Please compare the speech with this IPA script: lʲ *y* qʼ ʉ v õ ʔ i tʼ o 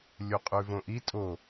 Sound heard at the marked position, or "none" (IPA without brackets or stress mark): u